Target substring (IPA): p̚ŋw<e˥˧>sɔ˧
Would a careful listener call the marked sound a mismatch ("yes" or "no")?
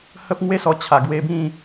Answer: no